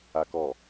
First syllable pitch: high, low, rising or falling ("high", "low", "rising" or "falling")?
low